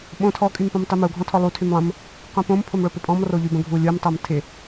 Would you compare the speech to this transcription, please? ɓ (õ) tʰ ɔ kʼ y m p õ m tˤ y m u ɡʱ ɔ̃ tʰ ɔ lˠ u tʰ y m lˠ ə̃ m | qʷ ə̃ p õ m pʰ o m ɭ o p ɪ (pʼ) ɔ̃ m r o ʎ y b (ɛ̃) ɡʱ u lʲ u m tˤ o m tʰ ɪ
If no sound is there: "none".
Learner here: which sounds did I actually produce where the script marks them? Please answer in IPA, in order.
õ, pʼ, ə̃

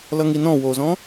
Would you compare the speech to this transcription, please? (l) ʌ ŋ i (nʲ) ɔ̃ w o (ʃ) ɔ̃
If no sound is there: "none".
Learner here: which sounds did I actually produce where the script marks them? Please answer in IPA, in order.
l, n, z

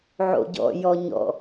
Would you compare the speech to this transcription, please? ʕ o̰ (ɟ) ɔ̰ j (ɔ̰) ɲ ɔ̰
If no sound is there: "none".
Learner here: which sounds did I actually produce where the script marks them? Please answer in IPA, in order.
ɟ, ɔ

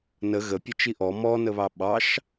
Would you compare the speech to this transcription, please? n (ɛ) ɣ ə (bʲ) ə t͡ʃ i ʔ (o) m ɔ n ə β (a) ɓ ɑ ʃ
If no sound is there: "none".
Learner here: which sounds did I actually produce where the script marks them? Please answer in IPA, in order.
ə, pʲ, ɔ, ɑ

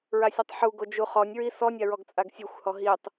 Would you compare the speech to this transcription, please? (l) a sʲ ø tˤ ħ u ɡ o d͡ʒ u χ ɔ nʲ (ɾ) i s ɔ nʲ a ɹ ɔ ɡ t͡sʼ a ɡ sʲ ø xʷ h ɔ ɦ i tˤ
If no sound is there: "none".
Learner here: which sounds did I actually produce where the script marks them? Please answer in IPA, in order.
ɹ, ɹ

